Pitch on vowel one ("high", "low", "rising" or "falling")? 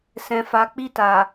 low